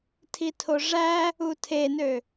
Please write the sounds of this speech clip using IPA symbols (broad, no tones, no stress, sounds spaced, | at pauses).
tʰ i tʰ o ʐ æ | u tʰ e n ø